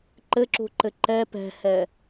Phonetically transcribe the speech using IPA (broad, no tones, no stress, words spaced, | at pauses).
ǃɘǁṳǃɘ ǃɛ pɛ̤hɛ